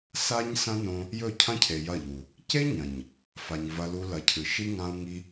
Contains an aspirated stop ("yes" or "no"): yes